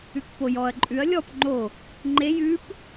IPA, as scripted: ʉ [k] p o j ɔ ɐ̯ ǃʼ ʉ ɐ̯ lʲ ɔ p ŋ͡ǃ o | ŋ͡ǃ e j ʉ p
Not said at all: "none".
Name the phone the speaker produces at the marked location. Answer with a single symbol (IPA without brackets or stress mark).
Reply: k